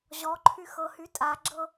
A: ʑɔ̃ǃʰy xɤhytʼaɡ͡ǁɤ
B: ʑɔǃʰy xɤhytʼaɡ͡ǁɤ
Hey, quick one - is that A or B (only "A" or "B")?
B